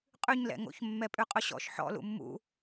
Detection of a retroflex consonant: absent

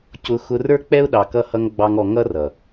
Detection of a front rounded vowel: absent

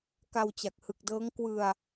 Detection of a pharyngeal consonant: absent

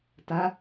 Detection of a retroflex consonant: absent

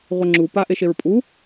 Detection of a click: present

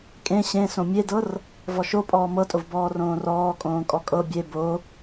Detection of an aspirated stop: absent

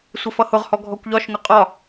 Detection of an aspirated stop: absent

